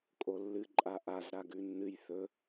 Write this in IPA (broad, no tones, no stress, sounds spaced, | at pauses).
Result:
kʼ o lː ɨ ǃʼ a ʔ a z ɾ a ɡ ʉ nː ɨ j θ ɵ